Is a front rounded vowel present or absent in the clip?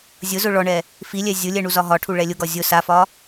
absent